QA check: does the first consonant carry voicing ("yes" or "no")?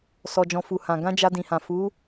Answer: no